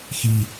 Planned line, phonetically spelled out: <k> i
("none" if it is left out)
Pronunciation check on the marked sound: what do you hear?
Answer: x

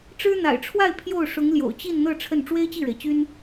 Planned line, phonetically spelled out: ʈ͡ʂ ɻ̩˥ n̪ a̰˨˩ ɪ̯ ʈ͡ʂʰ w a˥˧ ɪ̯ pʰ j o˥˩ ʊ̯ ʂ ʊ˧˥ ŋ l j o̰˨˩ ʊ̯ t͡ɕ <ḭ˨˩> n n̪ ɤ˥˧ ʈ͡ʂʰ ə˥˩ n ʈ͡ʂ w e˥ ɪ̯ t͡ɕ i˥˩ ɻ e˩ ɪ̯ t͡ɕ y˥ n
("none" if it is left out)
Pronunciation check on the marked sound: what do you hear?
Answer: i˥˧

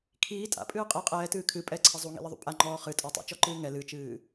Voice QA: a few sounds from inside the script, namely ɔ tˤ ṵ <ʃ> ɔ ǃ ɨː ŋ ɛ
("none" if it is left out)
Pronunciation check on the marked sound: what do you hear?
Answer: t͡ʃ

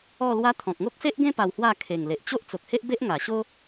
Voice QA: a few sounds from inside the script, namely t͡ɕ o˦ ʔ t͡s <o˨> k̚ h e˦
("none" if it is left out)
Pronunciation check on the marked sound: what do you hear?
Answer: o˨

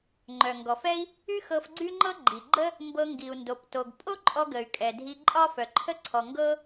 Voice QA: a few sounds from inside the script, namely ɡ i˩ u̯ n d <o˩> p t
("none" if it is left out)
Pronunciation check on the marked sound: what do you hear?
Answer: o˩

